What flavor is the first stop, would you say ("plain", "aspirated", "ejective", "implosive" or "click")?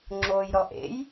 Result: click